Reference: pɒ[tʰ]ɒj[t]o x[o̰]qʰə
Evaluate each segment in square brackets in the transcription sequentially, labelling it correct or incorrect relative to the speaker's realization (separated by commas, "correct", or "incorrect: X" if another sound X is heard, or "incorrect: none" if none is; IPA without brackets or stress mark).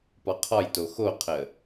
incorrect: qʰ, correct, incorrect: o